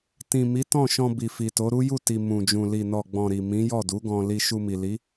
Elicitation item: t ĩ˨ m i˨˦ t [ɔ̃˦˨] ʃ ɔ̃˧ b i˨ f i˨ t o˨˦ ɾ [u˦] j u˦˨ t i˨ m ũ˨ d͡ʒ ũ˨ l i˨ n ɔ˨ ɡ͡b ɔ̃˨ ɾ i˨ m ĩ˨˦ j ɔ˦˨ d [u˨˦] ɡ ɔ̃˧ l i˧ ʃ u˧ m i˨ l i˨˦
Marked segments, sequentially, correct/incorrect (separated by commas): correct, correct, correct